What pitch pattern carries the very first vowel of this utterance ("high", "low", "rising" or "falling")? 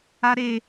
high